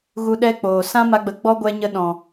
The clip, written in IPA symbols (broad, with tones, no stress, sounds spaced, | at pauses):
ɣ u˧ ɗ ɛ˦ k͡p oː˨ s ã˦ m a˧ ɡ͡b ə˨˦ ɡ͡b ɔ˦ ɡʷ ɛ˦ ɲ ə˦ ɗ ɔ̃˨